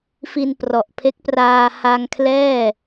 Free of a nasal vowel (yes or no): yes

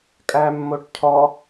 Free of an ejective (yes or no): no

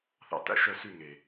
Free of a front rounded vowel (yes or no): no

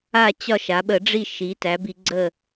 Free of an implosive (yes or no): no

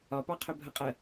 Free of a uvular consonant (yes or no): no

